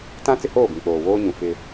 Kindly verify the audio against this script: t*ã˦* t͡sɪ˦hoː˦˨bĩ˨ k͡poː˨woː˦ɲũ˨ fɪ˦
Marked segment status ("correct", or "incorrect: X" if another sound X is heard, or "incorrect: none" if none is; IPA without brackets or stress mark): correct